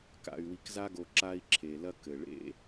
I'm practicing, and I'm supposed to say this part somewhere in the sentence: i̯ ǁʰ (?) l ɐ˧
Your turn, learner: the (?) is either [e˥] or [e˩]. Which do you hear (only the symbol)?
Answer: e˩